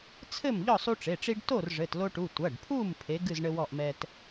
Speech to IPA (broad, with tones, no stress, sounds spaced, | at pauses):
t͡sʰ ɘ˥˨ m ʎ ɔ˥˨ sˤ u˦ ʈ͡ʂ e˩˧˩ ʈ͡ʂ i˦ ɖ t o˥˨ r ʐ ɘ˩˧˩ t l o˦ ʈ u˩˧˩ tʷ ɐ˩˧˩ ɖ pʰ u˥˨ m pʰ e˨˥ ɡ ɨ˥˨ z ɳ ɘ˦ w ɔ˥˨ ʔ m ɛ˦ t